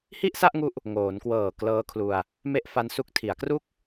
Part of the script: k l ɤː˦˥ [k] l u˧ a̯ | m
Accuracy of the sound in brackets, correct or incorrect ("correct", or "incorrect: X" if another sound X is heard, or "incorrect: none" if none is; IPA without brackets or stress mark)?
incorrect: kʰ